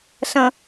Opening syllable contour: low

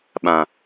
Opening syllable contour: low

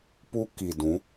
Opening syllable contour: high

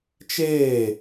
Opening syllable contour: falling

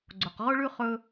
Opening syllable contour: low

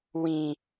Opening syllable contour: high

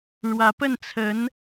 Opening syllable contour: rising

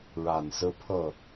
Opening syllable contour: low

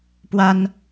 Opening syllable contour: high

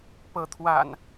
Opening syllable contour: rising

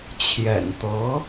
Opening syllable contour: low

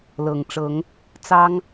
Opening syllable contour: low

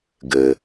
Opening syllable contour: low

